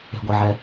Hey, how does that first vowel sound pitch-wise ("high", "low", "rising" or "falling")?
low